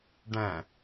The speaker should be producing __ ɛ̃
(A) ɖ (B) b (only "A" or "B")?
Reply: A